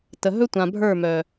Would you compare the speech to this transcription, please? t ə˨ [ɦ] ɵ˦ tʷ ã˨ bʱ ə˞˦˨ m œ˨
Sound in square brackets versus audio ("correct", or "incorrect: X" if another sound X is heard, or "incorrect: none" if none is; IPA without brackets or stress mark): correct